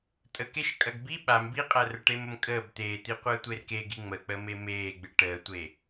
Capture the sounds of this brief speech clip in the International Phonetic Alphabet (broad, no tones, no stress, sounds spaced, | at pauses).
tʼ ə k e ʃ kʼ ɐ ɡ b i ɓ a m b i qʼ æ r ə ʈ e m ə m kʼ əː b t̪ eː t̪ i qʷ əː tʷ e r k e ɡ i ŋ͡m ə k͡p əː m e m eː ɡ͡b ɨ ʈ əː tʷ e